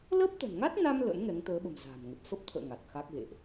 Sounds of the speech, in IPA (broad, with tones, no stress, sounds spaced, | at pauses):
l əː˦˥ p̚ t̪ ə̤˨˩ n ŋ a˦˥ t̚ n a˧ m l ə̰˧˥ n ŋ ɛ˨˦ ŋ t̪ əː˨˦ ɓ ə̤˨˩ m z a̤ː˨˩ m ŋ ə˨˩ p̚ f ə˦˥ p̚ t̪ʰ ə̰ː˧˨ ŋ a˨˩ t̚ x a˦˥ k̚ ɣ ḛ˧˨ ʔ